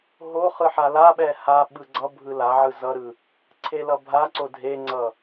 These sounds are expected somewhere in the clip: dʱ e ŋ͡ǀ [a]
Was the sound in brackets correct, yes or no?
no